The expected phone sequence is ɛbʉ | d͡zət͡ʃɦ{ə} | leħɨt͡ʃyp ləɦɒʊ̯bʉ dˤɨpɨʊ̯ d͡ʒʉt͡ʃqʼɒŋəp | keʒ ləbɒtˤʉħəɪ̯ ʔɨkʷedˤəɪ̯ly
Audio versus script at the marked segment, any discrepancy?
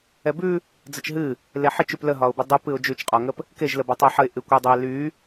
yes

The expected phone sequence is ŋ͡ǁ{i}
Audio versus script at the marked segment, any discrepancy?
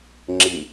no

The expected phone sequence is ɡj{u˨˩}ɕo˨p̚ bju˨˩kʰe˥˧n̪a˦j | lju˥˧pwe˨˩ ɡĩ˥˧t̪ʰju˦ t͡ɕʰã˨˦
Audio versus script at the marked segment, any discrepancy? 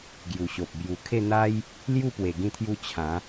no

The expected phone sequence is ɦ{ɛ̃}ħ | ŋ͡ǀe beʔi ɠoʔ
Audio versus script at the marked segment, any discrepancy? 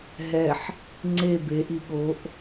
yes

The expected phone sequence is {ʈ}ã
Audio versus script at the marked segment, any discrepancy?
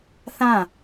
yes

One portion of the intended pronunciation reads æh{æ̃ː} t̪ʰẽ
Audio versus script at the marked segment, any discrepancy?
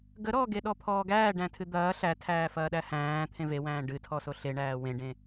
no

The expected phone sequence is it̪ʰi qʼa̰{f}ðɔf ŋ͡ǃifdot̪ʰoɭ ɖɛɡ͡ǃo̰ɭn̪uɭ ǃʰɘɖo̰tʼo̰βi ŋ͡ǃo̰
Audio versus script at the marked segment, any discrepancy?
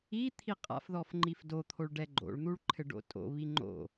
no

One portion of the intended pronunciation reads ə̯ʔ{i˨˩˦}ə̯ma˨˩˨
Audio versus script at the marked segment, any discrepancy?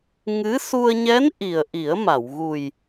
no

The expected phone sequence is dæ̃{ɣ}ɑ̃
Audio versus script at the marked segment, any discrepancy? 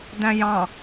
yes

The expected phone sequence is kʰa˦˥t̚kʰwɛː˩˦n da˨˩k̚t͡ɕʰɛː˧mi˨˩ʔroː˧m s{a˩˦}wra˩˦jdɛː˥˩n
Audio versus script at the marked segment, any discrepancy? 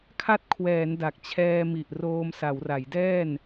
no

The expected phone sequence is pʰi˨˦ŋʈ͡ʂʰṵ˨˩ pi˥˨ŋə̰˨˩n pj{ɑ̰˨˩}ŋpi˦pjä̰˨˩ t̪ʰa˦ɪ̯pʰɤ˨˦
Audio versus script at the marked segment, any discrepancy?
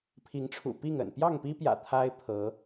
yes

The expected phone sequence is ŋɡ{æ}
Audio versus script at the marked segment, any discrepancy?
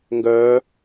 yes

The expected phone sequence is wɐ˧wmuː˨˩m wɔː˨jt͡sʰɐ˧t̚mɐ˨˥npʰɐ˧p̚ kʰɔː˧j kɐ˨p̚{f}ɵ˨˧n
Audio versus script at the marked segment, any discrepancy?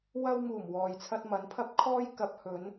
yes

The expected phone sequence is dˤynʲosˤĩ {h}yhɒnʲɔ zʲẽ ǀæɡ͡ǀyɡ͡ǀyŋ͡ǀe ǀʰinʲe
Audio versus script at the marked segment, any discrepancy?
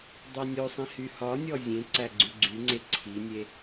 no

